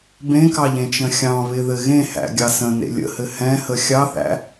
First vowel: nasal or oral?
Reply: nasal